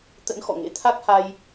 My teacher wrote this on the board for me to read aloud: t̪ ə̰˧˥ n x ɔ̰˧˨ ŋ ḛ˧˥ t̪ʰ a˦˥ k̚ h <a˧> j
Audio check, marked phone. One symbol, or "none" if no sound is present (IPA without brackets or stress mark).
a˧